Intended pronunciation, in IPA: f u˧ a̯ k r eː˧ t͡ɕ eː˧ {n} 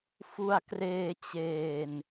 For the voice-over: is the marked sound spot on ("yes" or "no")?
yes